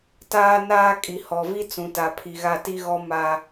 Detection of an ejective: present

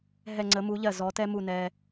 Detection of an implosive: absent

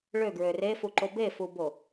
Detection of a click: present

